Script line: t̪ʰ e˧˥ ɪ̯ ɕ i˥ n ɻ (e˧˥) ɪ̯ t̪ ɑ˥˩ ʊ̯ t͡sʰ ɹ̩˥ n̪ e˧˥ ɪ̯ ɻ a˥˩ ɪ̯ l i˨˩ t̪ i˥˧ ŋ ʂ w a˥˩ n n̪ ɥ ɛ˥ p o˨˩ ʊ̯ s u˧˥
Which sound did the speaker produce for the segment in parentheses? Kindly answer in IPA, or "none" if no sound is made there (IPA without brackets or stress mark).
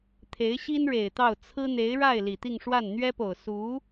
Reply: e˨˩